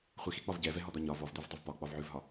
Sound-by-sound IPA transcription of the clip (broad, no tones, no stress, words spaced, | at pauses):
χʷixik͡pɒv ɟɛvɛɦɔd̪ɒ ɲɒ vɔvd̪ivdˤuv pɒk͡pɒvʕʉvɦɒ